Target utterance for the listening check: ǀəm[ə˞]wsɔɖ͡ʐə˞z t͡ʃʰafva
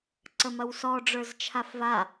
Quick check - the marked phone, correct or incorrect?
incorrect